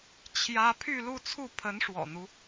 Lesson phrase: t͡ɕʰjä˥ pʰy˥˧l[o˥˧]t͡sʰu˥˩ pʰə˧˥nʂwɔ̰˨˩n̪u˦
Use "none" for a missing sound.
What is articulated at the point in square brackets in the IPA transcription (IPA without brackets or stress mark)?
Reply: u˥˧